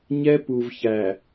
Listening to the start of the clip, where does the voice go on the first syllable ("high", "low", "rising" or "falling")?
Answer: high